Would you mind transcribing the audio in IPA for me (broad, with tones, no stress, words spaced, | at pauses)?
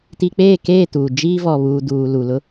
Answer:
ti˨k͡peː˦˨keː˦˨ tuː˨ d͡ʒiː˦vɔ˨ βuː˨duː˨lu˨ lʊ˦